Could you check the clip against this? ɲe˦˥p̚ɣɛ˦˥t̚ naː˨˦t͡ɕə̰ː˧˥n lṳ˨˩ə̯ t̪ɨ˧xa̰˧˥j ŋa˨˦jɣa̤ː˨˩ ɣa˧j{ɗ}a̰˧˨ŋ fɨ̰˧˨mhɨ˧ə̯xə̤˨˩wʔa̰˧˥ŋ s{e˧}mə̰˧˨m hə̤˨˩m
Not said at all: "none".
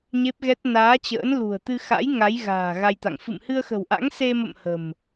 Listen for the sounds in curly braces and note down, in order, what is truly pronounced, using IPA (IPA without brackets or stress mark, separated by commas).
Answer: t̪, e˧